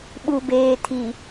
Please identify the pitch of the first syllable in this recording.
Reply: low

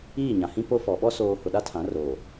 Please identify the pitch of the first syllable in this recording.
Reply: falling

